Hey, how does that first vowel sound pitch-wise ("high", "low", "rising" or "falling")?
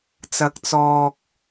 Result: low